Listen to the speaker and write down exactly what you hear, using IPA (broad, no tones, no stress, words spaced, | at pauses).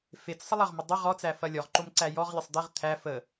fet͡ssˤəlˠɐʁmə dˤə ʁɔt͡sæfɐ lʲɔʁǃomǀæ jɔʁlʲɐsˤ d̪eʁ t̪ʰæ fə